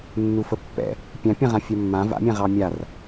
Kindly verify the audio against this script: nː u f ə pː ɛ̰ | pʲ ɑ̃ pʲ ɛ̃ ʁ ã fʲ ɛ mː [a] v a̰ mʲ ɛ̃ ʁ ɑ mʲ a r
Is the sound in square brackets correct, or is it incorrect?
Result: incorrect